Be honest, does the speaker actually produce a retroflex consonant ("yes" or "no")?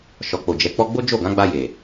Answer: no